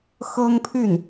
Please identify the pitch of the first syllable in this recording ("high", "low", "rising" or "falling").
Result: high